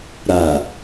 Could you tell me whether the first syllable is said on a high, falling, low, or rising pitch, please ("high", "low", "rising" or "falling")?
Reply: low